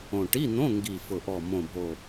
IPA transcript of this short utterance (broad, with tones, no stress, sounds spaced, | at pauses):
õ˨˩ ʈ i˧˥˧ n̪ õ˧˥˧ ŋ ɡ i˨˩ f ʊ˨˩ ʔ ɔ˨˩ m õ˨˩ bʱ o˨˩